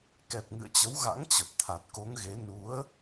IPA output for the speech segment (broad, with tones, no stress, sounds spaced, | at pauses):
k ɛ˨˩ p̚ ŋ ɨ̰˧˨ ə̯ t͡ɕ ə˨˦ w ɣ a̰˧˥ ŋ t͡ɕ ə˨˩ p̚ t̪ʰ a˨˩ t̚ k o˨˦ ŋ ɣ e˨˦ n u˨˦ ə̯